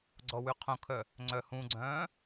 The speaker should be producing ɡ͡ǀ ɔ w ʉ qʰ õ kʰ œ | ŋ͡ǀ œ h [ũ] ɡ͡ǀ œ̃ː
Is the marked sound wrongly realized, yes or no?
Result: no